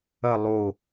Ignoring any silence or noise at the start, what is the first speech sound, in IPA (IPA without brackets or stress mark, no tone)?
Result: ɐ